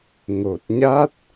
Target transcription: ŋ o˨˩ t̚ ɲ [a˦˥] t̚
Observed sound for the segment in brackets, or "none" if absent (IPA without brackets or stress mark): a˦˥